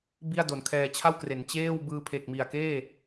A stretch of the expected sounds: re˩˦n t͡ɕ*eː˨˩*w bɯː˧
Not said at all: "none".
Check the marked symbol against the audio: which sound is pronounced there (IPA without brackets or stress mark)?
eː˥˩